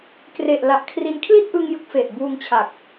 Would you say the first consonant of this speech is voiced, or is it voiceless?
voiceless